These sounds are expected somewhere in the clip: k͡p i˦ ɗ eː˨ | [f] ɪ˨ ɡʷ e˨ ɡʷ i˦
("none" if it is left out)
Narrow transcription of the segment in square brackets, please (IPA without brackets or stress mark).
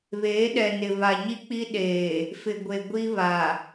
f